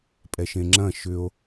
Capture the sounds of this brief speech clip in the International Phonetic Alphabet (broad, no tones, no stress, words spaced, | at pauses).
pʼɛʃẽŋ͡ǁɐ̃ ʃʏo̯